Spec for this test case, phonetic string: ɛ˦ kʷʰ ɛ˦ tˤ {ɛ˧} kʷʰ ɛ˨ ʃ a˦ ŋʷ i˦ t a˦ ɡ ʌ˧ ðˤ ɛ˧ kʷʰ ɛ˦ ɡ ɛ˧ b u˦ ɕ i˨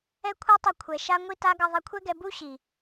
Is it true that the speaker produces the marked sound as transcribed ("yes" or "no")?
yes